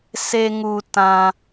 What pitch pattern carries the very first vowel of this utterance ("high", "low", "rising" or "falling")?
high